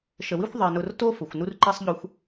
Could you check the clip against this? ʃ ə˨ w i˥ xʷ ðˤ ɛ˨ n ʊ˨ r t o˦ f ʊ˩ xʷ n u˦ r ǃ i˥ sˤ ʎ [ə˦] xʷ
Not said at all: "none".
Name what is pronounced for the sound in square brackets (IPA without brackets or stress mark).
ʊ˦